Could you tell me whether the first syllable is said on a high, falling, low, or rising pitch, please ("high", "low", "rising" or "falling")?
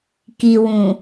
low